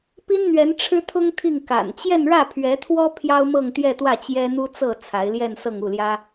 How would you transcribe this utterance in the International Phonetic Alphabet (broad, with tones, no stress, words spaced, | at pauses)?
pi˥nn̪ɥɛ˧˥n ʈ͡ʂʰɻ̩˥t̪ʰʊ˥ŋ t̪ʰi˥˩ŋ ka̰˨˩n t͡ɕjɛ˥˧nɻä˥˩pʰɥɛ˧˥t̪ʰwɔ˥ pʰjɑ˥ʊ̯mɤ˥˧ŋ t̪jɛ˥˧t̪wä˥˩ t͡ɕjɛ˥n̪u˥t͡sɤ˥˩ t͡sʰa˧˥ɪ̯ljɛ˥˧nsɤ˥˧ŋ u˥˩ljä˥